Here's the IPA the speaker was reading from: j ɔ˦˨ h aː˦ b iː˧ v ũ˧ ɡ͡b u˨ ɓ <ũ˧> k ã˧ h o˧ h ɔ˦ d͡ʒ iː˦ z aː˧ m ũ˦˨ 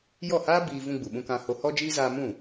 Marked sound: correct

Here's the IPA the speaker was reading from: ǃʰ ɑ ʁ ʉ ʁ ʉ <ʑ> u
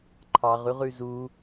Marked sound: incorrect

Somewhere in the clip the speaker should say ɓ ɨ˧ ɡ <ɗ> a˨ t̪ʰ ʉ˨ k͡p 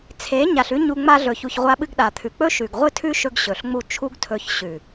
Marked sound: correct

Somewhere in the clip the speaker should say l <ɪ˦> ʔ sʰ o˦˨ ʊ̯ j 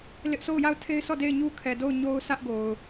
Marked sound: correct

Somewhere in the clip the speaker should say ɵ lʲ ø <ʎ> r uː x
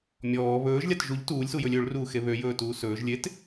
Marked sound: incorrect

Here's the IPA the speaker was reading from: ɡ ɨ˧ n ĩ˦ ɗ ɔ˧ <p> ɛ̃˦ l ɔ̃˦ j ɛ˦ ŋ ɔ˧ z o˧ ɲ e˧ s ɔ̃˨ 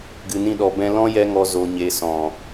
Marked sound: incorrect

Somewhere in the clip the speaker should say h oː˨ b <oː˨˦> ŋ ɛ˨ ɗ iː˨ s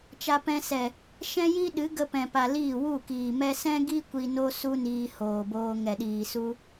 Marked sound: incorrect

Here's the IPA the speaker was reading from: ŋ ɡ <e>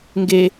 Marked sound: correct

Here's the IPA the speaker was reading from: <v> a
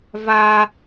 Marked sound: correct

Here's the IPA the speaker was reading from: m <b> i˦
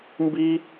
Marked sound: correct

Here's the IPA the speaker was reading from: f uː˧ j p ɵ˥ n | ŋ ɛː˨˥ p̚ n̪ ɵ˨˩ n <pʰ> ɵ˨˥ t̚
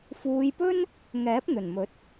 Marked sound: incorrect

